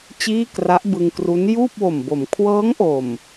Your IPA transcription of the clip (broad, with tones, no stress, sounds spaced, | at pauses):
t͡ɕ iː˥˩ k r a˦˥ ʔ b ɯ˧ ŋ k r u˦˥ n j uː˥˩ p̚ w o˨˩ m b o˩˦ m kʰ w ɤː˦˥ ŋ ʔ o˨˩ m